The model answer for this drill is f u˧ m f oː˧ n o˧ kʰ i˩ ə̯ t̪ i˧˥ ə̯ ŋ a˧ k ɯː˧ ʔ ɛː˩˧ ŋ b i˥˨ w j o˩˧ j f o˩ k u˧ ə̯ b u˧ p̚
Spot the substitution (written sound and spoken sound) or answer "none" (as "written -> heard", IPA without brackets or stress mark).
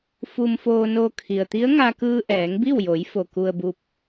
none